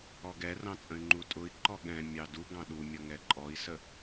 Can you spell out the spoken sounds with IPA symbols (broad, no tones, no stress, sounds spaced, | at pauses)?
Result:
ɔ ɡ ɛ r ɑ̃ t͡sʼ ə̃ y̯ ŋ͡ǃ u tʼ ʊ i̯ ǃ ɔ ɠ ɛ̃ mʲ ɑ d u ɡ ɑ̃ ɗ u mʲ ʌ ŋ ɛ ǃʼ ɔ i̯ s ə